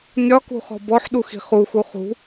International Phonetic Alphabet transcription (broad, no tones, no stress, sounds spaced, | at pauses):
nʲ ɒ k ṳ χ ɔ̤ b ɔ ħ ɗ u x i̤ χ u x u χ ṳ